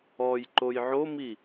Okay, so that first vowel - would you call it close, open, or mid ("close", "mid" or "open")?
mid